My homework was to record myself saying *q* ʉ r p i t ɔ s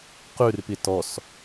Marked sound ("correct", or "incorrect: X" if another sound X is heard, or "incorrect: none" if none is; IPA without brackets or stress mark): correct